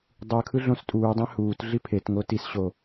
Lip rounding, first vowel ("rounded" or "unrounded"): unrounded